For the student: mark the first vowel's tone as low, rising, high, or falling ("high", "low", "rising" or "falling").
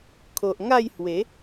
low